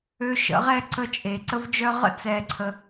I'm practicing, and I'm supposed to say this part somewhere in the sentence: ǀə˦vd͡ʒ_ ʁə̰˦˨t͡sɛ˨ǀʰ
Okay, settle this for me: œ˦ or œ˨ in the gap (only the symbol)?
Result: œ˦